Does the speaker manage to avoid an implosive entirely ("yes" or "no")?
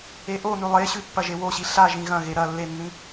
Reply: yes